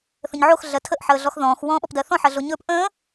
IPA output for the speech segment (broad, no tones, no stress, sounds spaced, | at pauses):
θ ə̃ ɲ ʕ o x ɮ ɜ tʰ ə ʔ ħ əː ɮ ɔ x ð ɔ̃ː x w ɔ̃ː ɓ ɔ p d ɜ θ ɔ̃ ħ ɜ ɮ o ɲ ɵː p ʔ ə̃ː